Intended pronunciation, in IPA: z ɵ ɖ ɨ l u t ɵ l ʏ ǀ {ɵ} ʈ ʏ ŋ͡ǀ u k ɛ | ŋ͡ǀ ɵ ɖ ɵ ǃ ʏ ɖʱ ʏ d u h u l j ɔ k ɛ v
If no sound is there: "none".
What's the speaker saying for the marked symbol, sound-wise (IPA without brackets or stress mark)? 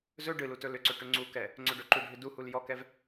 ɵ